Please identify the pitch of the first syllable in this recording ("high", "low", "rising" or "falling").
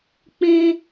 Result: high